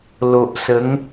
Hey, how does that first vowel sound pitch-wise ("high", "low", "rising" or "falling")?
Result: low